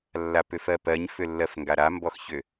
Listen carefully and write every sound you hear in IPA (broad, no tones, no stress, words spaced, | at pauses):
lːapʏfɜpɜɲ fʏlːɜfŋɡaɾa mbɔxçʏ